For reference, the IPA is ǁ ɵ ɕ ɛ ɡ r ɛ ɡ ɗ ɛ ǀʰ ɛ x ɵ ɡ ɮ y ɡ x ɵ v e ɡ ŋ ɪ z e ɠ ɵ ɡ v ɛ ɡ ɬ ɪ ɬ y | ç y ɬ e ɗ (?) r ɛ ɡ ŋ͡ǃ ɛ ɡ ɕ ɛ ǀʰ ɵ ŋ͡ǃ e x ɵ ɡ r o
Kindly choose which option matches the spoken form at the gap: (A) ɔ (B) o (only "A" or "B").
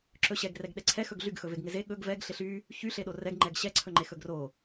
B